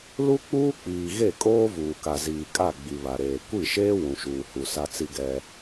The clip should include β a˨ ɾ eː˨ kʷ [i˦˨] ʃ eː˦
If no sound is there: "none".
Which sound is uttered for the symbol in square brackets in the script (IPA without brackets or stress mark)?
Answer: i˦˨